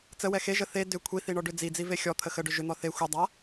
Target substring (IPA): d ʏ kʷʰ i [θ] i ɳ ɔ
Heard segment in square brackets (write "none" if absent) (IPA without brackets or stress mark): θ